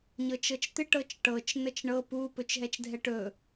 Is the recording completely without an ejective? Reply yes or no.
yes